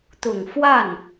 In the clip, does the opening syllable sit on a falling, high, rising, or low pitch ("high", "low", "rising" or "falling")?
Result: low